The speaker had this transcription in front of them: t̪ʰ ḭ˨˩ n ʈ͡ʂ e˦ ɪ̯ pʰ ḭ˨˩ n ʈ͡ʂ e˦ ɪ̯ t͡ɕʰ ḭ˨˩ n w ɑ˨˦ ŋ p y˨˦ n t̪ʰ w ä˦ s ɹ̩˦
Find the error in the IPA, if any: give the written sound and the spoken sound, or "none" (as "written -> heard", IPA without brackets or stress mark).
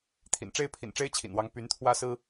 none